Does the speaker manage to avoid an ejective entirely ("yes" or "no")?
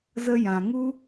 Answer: yes